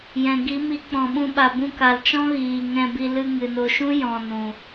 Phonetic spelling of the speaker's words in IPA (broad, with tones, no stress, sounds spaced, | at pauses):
j ɛ̃˨ ɡ i˨˦ m i˨˦ k͡p ɔ̃˨ ɓ ũ˧ ɓ a˨ b ũ˧ k a˨ l t͡ʃ ɔ̃˦ ɣ iː˨ ŋ ɛ̃˧ b i˧ l ɨ˧ ŋ ɨ˨ n o˧ ʃ ũ˦ j ɔ̃˨ n ũ˨